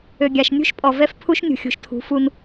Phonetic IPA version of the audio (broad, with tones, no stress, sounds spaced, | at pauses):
ø˨ ɡʲ a˨ ʃ nʲ ṳ˦ ʃ pʼ ɔ˨ v ɛ˦ f pʰ u˦ ʃ nʲ ṳ˨ xʲ ṳ˨ ʃ tʰ ṳ˨˦ f u˦ n